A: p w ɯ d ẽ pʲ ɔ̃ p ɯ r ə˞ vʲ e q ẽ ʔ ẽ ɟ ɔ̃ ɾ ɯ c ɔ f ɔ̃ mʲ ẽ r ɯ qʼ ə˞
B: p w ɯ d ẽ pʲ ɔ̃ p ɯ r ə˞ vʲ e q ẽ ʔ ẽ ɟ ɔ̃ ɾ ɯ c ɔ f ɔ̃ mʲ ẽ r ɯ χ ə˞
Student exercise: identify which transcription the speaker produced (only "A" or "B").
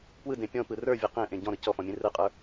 A